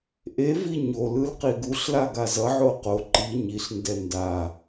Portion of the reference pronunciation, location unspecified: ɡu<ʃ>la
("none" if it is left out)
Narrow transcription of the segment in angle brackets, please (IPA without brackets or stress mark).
ɬ